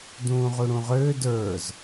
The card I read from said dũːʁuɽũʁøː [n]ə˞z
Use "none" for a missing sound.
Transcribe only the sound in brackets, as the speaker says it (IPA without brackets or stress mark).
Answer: d